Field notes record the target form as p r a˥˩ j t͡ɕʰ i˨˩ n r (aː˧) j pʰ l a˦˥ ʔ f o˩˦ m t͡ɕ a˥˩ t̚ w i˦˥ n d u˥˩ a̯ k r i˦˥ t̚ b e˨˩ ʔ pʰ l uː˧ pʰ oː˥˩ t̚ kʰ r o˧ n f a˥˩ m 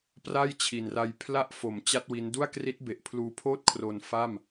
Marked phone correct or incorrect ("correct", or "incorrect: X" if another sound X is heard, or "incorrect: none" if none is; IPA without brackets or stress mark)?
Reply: incorrect: a˧